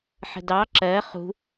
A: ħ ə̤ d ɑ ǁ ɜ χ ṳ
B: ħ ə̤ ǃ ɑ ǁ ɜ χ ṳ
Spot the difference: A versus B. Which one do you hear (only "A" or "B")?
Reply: A